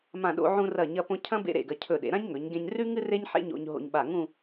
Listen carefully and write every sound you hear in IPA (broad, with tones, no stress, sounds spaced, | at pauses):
m ã˧˩ ɗ o̰˧ ʕ ũ˧ r ɐ˧˩ ɲ ɐ˧ p õ˧ cʰ ɐ̃˥ b ḛ˥ ɾ ḛ˧˩ ɡ ɐ˧ cʰ ɵ˧˩ ɗ ḛ˩˧ ɾ ã˥ ɲ ŋ ɵ˩˧ ɲ ɡ ẽ˧ ɲ r ʉ˥ ŋ ɨ˥ r e˥ ɲ ħ ḛ˥ ɲ o̰˧ ɲ ɦ o̰˧ ɲ ɓ a˧˩ ŋ ũ˥˧